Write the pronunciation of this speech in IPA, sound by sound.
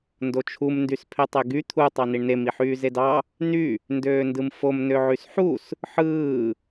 n d o t͡ʃʰ u m n d y s pʰ e tˤ e ɡ y t̪ʰ u tˤ ɑ n i ɳ n e m i ħ yː z e d ɑ | n y | n d øː n d ɯ m f o m n ø ʕ y s ħ u s | ħ ɯː

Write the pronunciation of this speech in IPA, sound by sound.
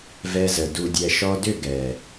v ɛ˧ z ə˨ d u˨ dʲ ɛ˨ ʃ ɔ˧ d ʏ˦˨ ɡ ɛ˨

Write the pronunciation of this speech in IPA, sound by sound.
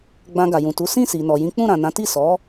ɡ͡b ã˧ ɡ a˨ j ũ˨ t u˨˦ s ĩ˦˨ s i˨ n ɔ˨ j ĩ˨˦ k͡p ũ˦˨ ɾ ã˨ n ã˨˦ t i˦˨ s ɔ˨˦

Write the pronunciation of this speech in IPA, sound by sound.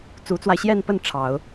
t͡s u˧˥ t͡s w a˧ ɪ̯ ɕ j ɛ˥˧ n p ə˥˩ n ʈ͡ʂʰ ɑ˨˩˦ ʊ̯

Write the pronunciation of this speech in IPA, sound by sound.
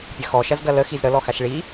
pʲ ɐ x ɔ ʃ ɐ z ɡ ɐ l ə x i z ɾ ə l ɔ x a ʃ ɭ i

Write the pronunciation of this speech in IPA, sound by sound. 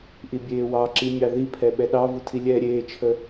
ʔ i bʲ eː w ɑ ǁ i mʲ ɑ ð i pʰ ɛ ɓ ɛ ɗ ɑ v u tʰ i lʲ ɛː ɾʲ eː t͡ʃʰ ə

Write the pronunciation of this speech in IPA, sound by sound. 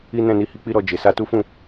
i˦ n ɛ̃˦˨ n i˧ h i˧ k͡p i˦ ɾ ɔ˧ d͡ʒ e˨ s a˧ t u˦ f ũ˦˨

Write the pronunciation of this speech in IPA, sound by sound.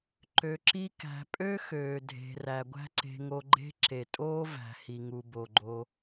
ǃ ø˨ ǁ i˧ k æ̤˨ pʼ ø˦ x øː˨ dʱ e̤˨ r æ˨ ɡʷ æ̤˦ ǀ e̤˧ ŋ o˧ ɡ͡ǃ e̤˦ ǁ e˨ tʼ oː˦ v æ̤˨ h i˨ ŋ u˨ b o˨ ɡ͡ǃ o˧

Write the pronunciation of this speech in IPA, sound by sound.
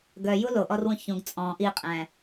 ɡ œ j u l o ʔ ɔ r w ũ ç ũ ɡ t͡sʼ ɔ̃ ʔ i qʼ æ̃

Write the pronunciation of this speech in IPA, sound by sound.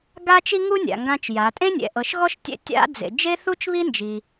ɡ a˥ t͡ʃ i˥ ŋ u˥ nʲ a̰˩ ŋ ɡ ã˧ t͡ʃ j a˩˧ tʼ ẽ˥ nʲ ɛ̰˩ ʔ ɤ˩˧ ʃ ɣ ɔ˥ ʃ tʲ ɛ̰˧ tʲ a̰˧˥ d͡z ḛ˩ d͡ʒ e˥ θ u˥ t͡ʃ β i˥ n d͡ʒ i˩

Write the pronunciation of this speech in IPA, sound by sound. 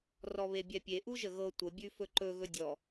r ɔ β e bʲ ɛ pʲ e ʔ u ʒ ə ɣ ɤ tʷ ə bʲ ʉ f ɵ ǃ ɵ ɣ ɵ dʲ ɔ

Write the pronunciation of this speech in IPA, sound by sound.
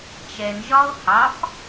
t͡ʃ ɛ n ʒ ɒ o̯ h ɑ f

